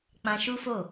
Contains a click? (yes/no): no